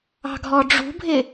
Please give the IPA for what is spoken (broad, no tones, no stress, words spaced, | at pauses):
ɑ̤ɡʱɔɖ͡ʐṳbʱɪ